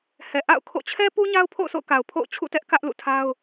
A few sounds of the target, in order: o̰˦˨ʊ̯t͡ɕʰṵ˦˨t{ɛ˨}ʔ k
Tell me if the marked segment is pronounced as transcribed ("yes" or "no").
no